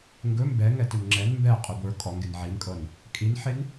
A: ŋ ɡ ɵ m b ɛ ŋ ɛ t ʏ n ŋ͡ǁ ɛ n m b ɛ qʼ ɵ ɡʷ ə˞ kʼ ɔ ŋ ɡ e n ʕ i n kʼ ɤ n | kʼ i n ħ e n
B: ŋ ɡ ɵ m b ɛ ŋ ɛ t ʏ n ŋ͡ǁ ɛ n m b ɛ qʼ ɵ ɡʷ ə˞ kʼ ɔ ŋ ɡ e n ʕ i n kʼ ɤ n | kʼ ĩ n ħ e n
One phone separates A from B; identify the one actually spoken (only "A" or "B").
A